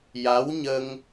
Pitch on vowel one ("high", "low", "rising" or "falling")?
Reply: rising